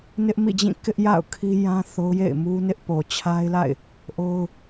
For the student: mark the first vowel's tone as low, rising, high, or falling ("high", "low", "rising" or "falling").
high